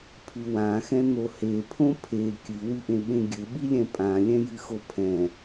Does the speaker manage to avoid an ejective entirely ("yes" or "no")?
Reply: no